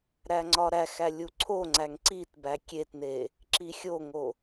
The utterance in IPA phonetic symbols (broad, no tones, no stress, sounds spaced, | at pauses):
ɾ æ ŋ͡ǀ ɒ ɾ æ x æ lʲ u ǀʰ o ŋ͡ǀ æ ŋ ǀ i t b æ kʲ e t n e | ǁ i xʲ o ŋ o